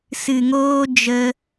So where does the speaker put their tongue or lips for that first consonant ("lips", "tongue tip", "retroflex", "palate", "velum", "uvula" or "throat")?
tongue tip